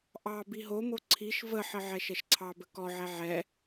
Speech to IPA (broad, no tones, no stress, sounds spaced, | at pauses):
ʔ ɑ b i ɦ o m o ǀʰ i ʃ v ə ħ ə ʕ ɛ ʃ ɛ ʃ ǀʰ ɑ b ə k ɔ ʕ ɛ ʕ ɛ